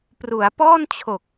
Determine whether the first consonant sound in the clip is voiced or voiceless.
voiceless